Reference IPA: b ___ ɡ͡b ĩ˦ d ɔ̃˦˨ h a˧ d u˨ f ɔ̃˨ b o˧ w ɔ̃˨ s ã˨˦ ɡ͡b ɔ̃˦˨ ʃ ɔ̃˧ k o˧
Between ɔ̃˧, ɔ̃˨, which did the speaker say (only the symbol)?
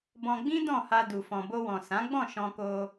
ɔ̃˧